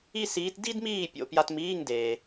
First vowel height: high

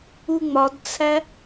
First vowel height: high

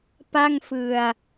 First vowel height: low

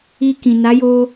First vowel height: high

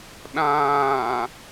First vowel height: low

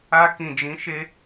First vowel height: low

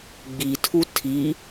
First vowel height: high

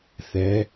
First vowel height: mid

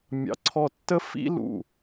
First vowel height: low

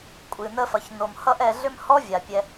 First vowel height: high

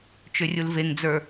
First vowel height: high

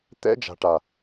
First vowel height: mid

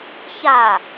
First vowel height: low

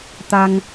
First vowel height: low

